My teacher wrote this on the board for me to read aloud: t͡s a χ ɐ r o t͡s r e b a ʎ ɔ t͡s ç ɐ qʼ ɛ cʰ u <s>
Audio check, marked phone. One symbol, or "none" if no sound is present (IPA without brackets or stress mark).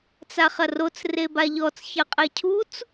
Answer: t͡s